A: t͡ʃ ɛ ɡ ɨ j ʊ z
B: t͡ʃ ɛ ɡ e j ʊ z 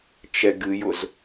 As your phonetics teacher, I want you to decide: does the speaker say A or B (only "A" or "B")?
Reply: A